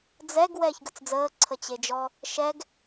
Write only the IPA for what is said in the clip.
d͡zɛɡ wɛːçɡət͡sd͡zəː ǀʰət͡ɕed͡ʒɔ | ʃɛɡ

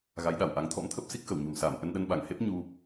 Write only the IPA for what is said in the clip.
ɣa˨˦jɗa˧˩wʔa˨˦ŋ t̪ʰɔ̰˧˥mt̪ʰə˦˥p̚si˦˥k̚xə˧˩w ɲo̤˨˩msaː˧˩m ʔə˧nɗə˧nɓa˧˩ŋhe˦˥p̚ ɲu˧

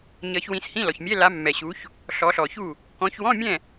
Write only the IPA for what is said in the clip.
ɲʌ˨˦ç wĩ˨˦shĩ˧˥˧lɔ˨çmʲɛ˧˥˧ la˨˦ mːɛ˨ɕu˨˦ç | ɬɔ˨˦ɬɔ˨çu˥˨ | kɔ̃˨˦çwɔ̃˧˥˧mʲɛ̃˥˨

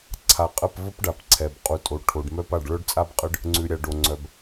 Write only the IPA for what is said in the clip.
ǀʰa˨qʼə˦˨pvə˦pɖa˨p ǀʰɛ˨b qʼu˨ tʼo˨ʈʰo˨ɖmœ˦pa˦˨ɖ ɭœ˦ɖt͡sʼa˦bqʼə˦ɖ | ŋ͡ǀʉ˨ɾʲa˨ ɖo˨ŋ͡ǀœ˨b

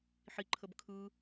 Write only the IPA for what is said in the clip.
ħi ǃʰəbkʰɯ

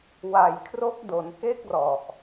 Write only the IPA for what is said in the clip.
wa˨˩jkʰro˦˥k̚ do˩˦nke˥˩k̚rɔ˨˩ʔ

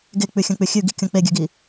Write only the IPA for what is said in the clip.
ɡek͡pʉxʲɐ̃k͡pʉ xʲʉɡikʲõ k͡peɡʲʉɡi

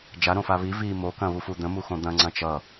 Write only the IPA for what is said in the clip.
d͡ʒaɾõfa βi vi mo kɐ̃βufud̪ə̃ muxõd̪ɐ̃ ŋ͡ǀɐ̃t͡ʃʌ

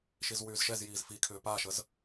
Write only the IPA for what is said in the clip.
ʃizwyːzʃɛz jiːzfikʰʏː paːʃəz

